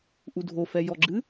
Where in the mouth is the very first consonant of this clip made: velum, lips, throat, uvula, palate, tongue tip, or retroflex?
throat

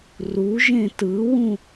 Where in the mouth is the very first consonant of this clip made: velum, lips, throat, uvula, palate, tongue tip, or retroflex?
tongue tip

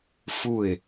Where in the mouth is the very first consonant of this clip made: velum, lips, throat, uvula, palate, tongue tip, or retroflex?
lips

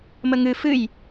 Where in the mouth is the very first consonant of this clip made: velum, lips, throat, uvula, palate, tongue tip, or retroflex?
lips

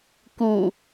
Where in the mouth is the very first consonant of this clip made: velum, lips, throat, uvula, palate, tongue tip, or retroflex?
velum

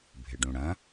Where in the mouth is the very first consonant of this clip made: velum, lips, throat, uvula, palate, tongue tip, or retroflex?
lips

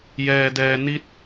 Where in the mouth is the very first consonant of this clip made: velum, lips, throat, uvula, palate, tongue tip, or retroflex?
palate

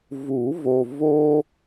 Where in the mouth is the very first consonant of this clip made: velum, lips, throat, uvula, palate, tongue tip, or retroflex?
lips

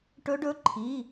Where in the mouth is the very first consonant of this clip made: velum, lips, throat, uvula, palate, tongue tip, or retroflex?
retroflex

